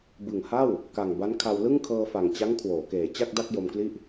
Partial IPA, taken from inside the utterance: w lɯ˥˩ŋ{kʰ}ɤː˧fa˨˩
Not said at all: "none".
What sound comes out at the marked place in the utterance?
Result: kʰ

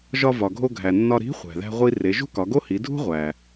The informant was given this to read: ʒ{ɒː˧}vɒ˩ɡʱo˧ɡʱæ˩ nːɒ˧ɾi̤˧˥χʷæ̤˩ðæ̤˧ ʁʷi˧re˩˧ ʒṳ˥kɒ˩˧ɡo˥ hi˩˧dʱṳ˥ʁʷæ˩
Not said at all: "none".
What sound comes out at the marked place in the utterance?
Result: ɒ˧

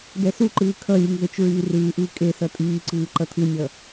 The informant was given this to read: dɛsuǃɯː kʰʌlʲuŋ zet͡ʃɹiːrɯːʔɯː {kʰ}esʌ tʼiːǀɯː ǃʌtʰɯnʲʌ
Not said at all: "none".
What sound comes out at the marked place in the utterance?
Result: kʼ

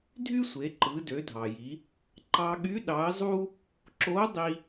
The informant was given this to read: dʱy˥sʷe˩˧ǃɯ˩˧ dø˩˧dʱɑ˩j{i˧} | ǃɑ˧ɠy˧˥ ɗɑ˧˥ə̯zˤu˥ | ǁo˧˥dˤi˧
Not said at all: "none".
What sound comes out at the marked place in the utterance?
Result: i˩˧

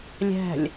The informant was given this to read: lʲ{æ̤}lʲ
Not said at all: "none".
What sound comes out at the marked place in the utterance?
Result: æ̤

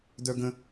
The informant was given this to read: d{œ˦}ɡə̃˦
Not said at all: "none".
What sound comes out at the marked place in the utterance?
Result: œ˦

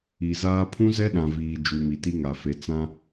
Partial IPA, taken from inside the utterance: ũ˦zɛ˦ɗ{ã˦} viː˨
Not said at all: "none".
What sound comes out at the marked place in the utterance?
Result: ã˨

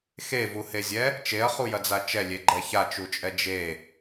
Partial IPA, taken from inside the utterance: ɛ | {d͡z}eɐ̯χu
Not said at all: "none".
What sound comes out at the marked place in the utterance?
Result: t͡ʃ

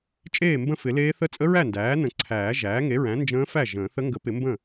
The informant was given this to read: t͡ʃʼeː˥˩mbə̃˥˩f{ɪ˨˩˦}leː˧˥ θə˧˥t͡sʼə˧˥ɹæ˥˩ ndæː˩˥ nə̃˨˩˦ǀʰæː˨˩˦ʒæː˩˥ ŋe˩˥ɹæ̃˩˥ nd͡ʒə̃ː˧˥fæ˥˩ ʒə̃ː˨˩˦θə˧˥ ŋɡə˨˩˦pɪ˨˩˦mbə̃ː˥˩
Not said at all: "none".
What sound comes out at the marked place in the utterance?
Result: ɪ˨˩˦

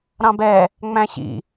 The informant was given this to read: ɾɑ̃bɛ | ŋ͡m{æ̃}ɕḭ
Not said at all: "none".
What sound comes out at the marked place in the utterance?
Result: æ̃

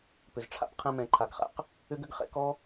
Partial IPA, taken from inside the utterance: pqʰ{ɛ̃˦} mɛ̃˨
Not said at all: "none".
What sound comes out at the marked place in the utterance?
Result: ɛ̃˧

